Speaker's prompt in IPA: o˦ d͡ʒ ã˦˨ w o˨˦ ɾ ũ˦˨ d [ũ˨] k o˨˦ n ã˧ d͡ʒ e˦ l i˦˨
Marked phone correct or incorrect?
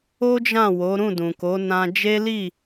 correct